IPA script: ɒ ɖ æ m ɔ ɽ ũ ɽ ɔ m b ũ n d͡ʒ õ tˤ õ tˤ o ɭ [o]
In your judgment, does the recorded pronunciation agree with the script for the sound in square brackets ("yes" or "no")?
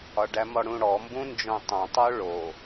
yes